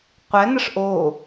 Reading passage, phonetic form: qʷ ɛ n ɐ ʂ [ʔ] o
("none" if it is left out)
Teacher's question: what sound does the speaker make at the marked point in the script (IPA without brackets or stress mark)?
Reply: ʔ